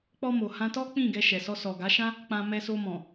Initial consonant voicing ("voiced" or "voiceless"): voiceless